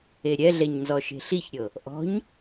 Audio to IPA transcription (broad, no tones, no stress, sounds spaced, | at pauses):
e ɾʲ ɛ ɮ ɛ ɲ n z ɔ ʃ e̤ ɬ i ç ɾʲ ɤ | ʔ ɔ̤ ɲ